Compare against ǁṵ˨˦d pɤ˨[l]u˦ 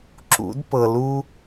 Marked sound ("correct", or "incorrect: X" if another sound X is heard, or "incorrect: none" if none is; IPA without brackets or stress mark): correct